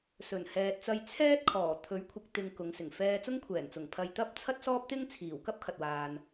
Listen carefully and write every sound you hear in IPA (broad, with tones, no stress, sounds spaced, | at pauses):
s ɵ˨˩ n h ɛː˨ t̚ t͡s ɐ˧ j t͡sʰ ɛː˥ t̚ kʰ ɔː˨˩ t̪ʰ ɵ˨˥ ɥ kʷʰ ɪ˨ k̚ t̪ ɪ˨ ŋ k ʊ˨˧ ŋ s ɪ˨˩ ŋ f ɛː˧ t͡s ʊ˥ ŋ kʷʰ ɛː˨˩ n t͡s ʊ˨˩ ŋ pʰ ɐ˨ j t̪ ɐ˧ p̚ t͡sʰ ɐ˥ t̚ s ɔː˥ p̚ t̪ ɪ˥ ŋ t͡sʰ iː˨˩ w k ɐ˥ p̚ kʰ ɐ˨ t̚ w aː˨ n